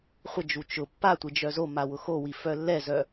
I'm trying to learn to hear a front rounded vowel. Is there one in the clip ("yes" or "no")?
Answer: yes